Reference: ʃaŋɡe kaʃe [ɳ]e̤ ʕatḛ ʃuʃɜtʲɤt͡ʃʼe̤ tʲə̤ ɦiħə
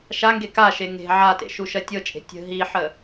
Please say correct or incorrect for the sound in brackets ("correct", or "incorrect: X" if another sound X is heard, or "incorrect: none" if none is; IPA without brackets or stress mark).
incorrect: ŋ